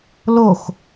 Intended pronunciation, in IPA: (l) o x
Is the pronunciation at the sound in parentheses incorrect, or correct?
correct